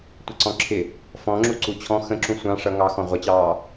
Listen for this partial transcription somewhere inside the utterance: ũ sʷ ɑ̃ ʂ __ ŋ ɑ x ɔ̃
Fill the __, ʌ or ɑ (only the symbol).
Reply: ʌ